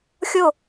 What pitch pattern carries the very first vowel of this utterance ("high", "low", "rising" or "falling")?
falling